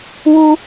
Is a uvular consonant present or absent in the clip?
absent